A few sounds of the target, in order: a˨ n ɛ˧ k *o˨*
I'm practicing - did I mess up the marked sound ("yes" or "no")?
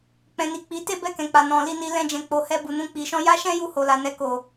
no